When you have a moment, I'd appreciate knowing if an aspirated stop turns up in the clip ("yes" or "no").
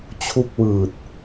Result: yes